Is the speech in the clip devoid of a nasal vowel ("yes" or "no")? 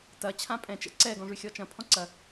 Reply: no